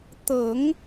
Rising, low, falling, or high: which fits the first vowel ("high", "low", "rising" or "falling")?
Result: low